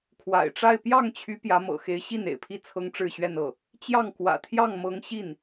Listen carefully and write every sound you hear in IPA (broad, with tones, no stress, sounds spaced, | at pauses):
kʰ w a̰˨˩ ɪ̯ ʈ͡ʂ a˥˧ ɪ̯ p j ɑ˥˩ ŋ t͡ɕʰ y˧˥ p j ä˧˥ m ɤ̰˨˩ x e˧˥ ɪ̯ ɕ i˥˩ n ḛ˨˩ ɪ̯ pʰ i˥˩ t͡sʰ ɤ˥ ŋ ʈ͡ʂ ɻ̩˥˧ ɕ ɥ ɛ˥˧ n ɤ˥˩ | t͡ɕ j ɑ˥˩ ŋ k w ä̰˨˩ t̪ʰ j ɑ˥˩ ŋ m ɤ˧˥ ŋ ɕ i˥˩ n